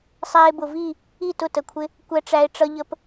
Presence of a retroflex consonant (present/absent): present